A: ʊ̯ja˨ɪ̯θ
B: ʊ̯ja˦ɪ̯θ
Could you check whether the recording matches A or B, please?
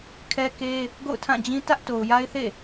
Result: B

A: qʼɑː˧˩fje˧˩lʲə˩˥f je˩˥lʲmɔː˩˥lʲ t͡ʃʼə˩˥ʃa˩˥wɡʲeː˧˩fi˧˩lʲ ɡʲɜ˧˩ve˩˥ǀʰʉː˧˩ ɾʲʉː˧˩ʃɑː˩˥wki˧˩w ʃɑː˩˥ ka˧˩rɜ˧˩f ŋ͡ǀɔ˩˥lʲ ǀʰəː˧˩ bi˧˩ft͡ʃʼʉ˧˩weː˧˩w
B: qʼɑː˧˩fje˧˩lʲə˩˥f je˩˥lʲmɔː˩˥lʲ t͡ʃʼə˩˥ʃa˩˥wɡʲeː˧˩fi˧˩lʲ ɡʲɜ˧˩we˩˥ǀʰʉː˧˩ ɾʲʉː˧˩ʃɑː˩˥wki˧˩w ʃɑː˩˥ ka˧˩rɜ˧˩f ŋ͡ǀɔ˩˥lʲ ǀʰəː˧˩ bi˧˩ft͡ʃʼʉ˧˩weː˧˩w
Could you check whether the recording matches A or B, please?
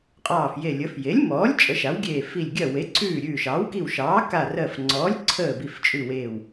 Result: B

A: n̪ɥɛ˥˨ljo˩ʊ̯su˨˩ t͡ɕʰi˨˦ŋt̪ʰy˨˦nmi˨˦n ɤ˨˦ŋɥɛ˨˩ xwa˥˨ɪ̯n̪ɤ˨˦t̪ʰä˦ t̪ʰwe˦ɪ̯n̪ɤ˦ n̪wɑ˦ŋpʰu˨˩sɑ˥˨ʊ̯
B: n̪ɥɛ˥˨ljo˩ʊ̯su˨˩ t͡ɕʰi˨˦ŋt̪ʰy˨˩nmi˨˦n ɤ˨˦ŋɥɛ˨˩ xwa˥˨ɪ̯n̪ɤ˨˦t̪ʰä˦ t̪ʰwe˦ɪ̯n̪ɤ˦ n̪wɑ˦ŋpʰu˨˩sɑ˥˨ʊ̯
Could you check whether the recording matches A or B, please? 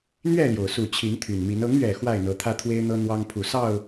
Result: B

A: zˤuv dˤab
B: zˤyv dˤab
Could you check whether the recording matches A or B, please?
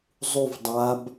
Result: A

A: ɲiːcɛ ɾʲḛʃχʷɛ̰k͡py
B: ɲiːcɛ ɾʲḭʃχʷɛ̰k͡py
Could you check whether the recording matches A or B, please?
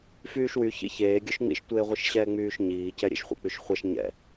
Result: A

